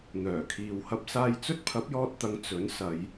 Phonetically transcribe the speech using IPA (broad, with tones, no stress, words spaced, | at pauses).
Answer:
n̪œː˨˩kʰiː˨w hɐ˧p̚saː˧jt͡sɵ˥t̚ pʰɐ˨˥p̚jɔː˧t̚t̪ɐ˨˧ŋ t͡sɵ˨˥n sɐ˨˧j